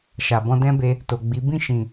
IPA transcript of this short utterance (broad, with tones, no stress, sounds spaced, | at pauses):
ʃ a˨ b ɔ̃˧ d ɛ̃˦ b e˧ | t o˨ ɡ͡b i˨˦ b ĩ˦˨ ʃ ĩ˨